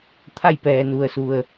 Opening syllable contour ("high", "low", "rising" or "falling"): falling